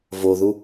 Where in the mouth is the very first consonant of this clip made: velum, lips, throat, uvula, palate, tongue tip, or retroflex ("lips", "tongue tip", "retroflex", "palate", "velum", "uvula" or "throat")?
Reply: lips